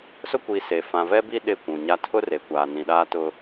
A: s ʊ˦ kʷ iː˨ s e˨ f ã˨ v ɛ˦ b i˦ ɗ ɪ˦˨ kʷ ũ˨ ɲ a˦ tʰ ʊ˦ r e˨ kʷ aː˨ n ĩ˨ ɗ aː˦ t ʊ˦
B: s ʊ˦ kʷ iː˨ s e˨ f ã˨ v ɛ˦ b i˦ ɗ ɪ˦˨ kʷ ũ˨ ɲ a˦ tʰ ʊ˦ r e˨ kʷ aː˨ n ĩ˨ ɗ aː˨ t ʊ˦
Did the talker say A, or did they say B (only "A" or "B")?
A